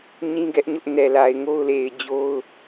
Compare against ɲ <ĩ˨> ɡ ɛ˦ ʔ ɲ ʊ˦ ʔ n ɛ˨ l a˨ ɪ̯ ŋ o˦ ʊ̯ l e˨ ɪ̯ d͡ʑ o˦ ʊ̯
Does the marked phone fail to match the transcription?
yes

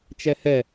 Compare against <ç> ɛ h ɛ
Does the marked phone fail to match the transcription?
yes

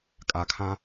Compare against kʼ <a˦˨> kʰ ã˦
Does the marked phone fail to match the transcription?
yes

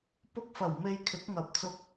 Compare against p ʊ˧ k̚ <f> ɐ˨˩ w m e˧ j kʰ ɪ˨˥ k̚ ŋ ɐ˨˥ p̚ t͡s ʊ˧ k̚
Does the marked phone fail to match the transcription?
no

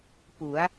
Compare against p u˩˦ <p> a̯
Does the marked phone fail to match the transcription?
yes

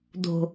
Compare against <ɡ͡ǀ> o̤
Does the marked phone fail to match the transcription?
yes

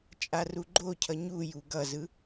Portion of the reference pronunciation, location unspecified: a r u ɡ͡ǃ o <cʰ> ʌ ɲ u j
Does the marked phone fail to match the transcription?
no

